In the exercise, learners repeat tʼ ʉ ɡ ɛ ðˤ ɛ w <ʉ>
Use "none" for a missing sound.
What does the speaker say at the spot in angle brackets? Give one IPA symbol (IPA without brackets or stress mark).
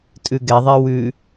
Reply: ʉ